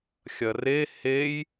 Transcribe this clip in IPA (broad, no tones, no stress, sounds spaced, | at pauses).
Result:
xʲ ɐ r e h e j